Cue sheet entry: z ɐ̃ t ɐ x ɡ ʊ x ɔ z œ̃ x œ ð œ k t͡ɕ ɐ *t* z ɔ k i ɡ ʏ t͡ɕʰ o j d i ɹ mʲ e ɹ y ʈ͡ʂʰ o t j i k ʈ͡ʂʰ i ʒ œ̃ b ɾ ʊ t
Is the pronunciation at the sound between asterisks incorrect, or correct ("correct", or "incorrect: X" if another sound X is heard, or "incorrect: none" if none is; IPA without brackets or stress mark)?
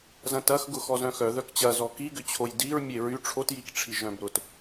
incorrect: none